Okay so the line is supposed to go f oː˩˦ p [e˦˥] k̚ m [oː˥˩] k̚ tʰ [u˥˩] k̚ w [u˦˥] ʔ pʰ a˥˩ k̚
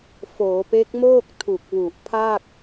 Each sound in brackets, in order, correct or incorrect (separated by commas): correct, correct, incorrect, incorrect